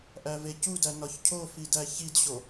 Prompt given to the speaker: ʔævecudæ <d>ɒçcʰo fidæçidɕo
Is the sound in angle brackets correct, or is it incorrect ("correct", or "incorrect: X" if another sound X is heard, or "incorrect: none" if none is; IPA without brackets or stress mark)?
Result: incorrect: n